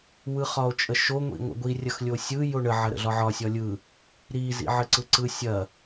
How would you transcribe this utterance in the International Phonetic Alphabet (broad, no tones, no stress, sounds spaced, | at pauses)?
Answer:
w ɯ χ ɒ o̯ t͡ʃʼ ə ʃ o ŋʷ ḭ ŋʷ ə̰ ɡʷ i rʲ ɐ x lʲ o sʲ ɯ j o ɳ ə ʕ ɐ ɾ ə̰ ɮ ɒ ʕ ɒ sʲ ɒ lʲ ɯ | ɾ i z ḭ ʕ ə ǀ ɯ ǀ ɯ sʲ ɐ